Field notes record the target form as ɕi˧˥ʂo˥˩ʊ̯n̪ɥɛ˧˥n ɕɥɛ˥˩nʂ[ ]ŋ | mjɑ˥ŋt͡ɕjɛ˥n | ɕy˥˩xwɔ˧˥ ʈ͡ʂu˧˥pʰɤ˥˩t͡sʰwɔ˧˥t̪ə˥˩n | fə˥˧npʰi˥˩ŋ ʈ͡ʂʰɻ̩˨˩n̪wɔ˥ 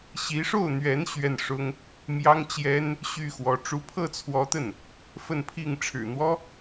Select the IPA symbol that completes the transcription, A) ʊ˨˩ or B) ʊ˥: B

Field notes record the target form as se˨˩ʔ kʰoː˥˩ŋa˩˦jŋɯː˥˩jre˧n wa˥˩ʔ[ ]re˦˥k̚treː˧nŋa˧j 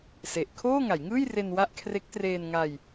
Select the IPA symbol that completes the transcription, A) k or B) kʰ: B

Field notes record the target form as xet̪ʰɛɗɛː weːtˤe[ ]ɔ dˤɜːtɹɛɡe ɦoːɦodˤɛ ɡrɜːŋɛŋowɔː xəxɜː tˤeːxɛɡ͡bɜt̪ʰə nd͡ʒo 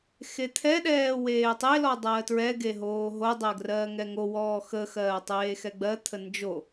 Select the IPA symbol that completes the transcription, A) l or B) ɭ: A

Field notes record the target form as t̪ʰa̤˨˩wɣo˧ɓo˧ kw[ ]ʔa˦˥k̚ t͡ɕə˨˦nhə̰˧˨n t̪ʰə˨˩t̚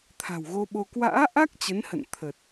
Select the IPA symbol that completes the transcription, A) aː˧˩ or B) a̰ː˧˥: B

